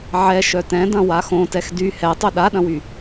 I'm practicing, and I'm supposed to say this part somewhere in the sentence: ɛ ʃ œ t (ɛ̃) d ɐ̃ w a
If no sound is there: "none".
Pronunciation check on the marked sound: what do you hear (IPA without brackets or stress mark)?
ɛ̃